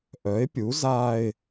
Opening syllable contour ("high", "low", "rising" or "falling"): rising